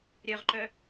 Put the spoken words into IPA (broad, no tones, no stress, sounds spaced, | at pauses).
ɾʲ œ ʁ ǃ œ